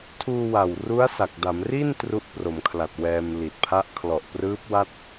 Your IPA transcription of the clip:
tʰ uː˧ w a˨˩ w r u˦˥ a̯ s a˨˩ k̚ d a˩˦ m r i˥˩ n t r u˦˥ ʔ p r o˩˦ m kʰ l a˨˩ t̚ w ɛː˧ m l i˨˩ t̚ pʰ a˦˥ ʔ kʰ l ɔ˨˩ ʔ p r ɯː˦˥ p̚ w a˥˩ t̚

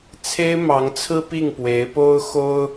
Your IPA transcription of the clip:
t͡sʰ e˥ ɪ̯ m ɑ˧˥ ŋ t͡sʰ ɹ̩˥ p i˥˩ ŋ p w e˧˥ ɪ̯ p o˥ ʊ̯ x o˥ ʊ̯

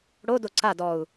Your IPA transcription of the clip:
ɽ o d o ǀ a d ɔ u̯

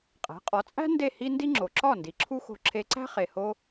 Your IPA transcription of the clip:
qʼ æ̤˩˥ qʼ ɒ˩˥ t͡sʼ æ̤˥ n d e˥˩ h i˥ n d i˥ ŋ͡ǁ o˩ ǁ ɒ˥˩ n d i˩ ǁʰ u˥ x o̤˧ ǁʰ e˧ ǀ æ̤˥ χ e˩ h o˧

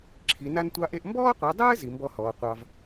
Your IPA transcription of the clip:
ǁʰ i˨˦ n a˥ n tʷ ɑ˥ ʔ e˥ ʔ m b ɔː˥ qʷ i˨˦ dˤ ɘː˥ z i˨˦ m b ɔ˥ h ɔː˨˦ qʷ ɑ˥ v

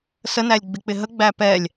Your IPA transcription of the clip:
s ə n æ lʲ ɡ͡b ɪ k͡p ɪ ɦ ə ɡ͡b æ p ɛ lʲ

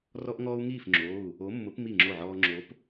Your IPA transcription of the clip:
r ɔ˦ ʔ ŋ ɔː˦ u̯ ŋ iː˥˩ f ŋ͡ǁ oː˩˧˩ u̯ | o˨˥ mː ʊ˨˥ p m i˥˩ ŋ͡ǁ o˥˩ ʕ ɔː˦ ŋ͡ǁ o˨˥ p

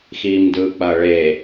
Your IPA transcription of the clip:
x iː m d ɯː k͡p ɐː ɭ e

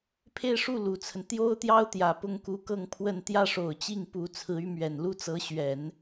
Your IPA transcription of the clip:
pʰ e˥˧ ɪ̯ ʂ u˥˩ l u˨˩ t͡sʰ ə˦ n t̪ j o˥ ʊ̯ t̪ j ɑ˥ ʊ̯ t̪ j ä˨˩ p ʊ˥˩ ŋ k u˧˥ k ɤ˥˧ ŋ pʰ w ə˥˧ n t̪ j ä˥˩ ʂ o˨˩ ʊ̯ t͡ɕ i˥˩ ŋ p u˧˥ t͡sʰ ɹ̩˧˥ y˧˥ m ɥ ɛ˨˩ n l u˥ t͡s ɤ˧˥ ɕ ɥ ɛ˨˩˦ n

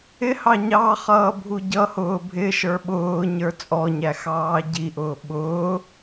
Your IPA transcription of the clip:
ɪ h ɑ ɲ ɑ χ ʌː bʱ u ɟ ʌ h ʊː bʱ ɪ ʃ ə˞ ɓ ʊː ɲ ə˞ t͡sʼ ɔ ɲ æ x ɑː ɟ i ʔ ʊː ɓ ʊː

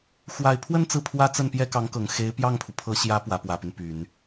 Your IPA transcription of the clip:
x w a˨˩ ɪ̯ pʰ w ə˥˧ n t͡s ɹ̩˥˩ pʰ w ä˥ t͡s ə˥˩ n p j ɛ˥ k ɑ˧˥ ŋ k ɤ˨˩ ŋ x e˧˥ ɪ̯ p j ɑ˥˩ ŋ pʰ u˩ pʰ ɤ˧˥ ɕ j ä˧˥ p w ä˧˥ p w ä˨˩ p y˦ n p y˨˩˦ n

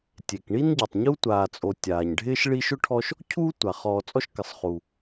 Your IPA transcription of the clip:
tʲ e˩ k ɳ i˥ n ɟ ɛ˩ tˤ ɲ u˥ tʷ aː˨ t͡sʼ o˨ tʲ aː˩ ɲ ɖʱ ɪː˥ ʃ ɭ i˦ ʃ ʊ˥ ʈʰ ɔ˦ ʃ | cʰ uː˥ tʷ a˩ χ ɔː˨ t͡sʼ ɔ˦ ʃ k ɪ˩ sˤ χ u˩

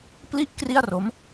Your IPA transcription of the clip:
p l i˥˩ ʔ k r i˥˩ a̯ r o˦˥ m

